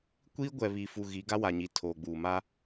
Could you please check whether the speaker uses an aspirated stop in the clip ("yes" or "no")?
yes